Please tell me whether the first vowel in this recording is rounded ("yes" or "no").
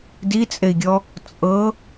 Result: no